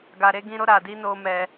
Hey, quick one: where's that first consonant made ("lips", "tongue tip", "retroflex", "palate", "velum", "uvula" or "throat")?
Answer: velum